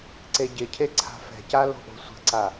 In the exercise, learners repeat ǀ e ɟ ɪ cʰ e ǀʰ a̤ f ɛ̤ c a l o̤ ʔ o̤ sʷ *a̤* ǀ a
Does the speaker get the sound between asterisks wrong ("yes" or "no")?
yes